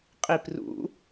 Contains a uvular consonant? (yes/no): yes